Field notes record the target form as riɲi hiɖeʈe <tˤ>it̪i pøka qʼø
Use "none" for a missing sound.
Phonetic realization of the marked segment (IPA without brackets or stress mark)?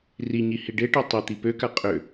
tˤ